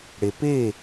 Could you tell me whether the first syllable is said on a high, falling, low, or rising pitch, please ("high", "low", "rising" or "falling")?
low